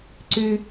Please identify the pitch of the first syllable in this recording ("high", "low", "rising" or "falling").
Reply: low